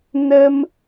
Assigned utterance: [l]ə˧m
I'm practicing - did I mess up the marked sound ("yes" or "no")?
yes